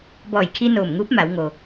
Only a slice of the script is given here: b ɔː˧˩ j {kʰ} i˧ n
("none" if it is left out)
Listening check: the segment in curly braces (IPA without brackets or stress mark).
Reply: kʰ